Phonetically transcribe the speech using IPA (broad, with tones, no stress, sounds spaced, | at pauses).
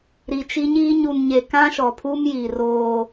ɾ i˨ t͡ʃ i˦ ɲ iː˦ ɲ u˨ n ɲ e˨ k ã˦ ʃ ɔ˨ pʰ u˦ m j i˨ r oː˦